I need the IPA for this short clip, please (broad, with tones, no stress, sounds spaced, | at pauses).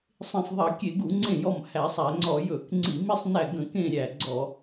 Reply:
sˤ ẽ˧˩ sˤ ðˤ æ˧˩˧ kʲ e˧˩˧ ɡ u˧˩˧ ŋ͡ǀ ẽ˧˩ j ɔ˧˩ m h æ˧˩˧ sˤ æ˧˩˧ ŋ͡ǀ ɔ˧˩˧ j ɵ˧˩˧ k ŋ͡ǀ i˧˩˧ m i˧˩ sˤ n æ˧˩ ɡ ə̃˧˩˧ k ẽ˧˩ ɾʲ æ˧˩ ɡ͡ǀ ɔ˧˩˧